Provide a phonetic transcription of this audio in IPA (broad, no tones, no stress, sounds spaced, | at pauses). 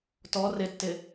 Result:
t ɔ r ɪ tː ɪ